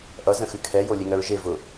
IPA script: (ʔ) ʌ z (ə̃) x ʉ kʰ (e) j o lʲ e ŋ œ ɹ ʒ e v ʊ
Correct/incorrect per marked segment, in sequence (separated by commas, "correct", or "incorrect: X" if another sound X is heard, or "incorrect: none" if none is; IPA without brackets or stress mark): correct, correct, incorrect: ɛ